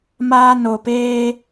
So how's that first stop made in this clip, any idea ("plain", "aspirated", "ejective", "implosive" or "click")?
plain